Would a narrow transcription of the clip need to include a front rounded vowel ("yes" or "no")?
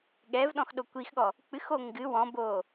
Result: no